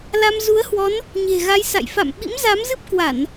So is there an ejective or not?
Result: no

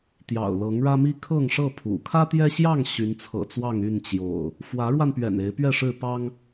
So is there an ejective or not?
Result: no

